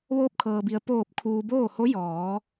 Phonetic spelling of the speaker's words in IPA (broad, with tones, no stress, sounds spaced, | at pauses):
ʋ oː˧ p̚ kʰ ɤː˩ b i˩ ə̯ p oː˧˩ p̚ kʰ uː˩ b oː˥˨ h o˧˥ j ɔː˩˧